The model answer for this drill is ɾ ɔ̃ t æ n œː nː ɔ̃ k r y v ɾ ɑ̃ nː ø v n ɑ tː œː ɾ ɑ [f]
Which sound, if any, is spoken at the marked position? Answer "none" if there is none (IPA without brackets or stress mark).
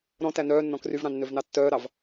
v